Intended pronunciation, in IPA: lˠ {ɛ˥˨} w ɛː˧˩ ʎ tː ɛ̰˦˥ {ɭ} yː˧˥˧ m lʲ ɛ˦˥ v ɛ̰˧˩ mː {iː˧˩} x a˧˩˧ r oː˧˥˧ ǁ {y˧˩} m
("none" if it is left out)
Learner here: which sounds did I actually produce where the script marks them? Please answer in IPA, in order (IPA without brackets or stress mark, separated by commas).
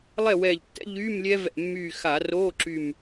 ɛ˥˨, ʎ, yː˧˩, y˧˩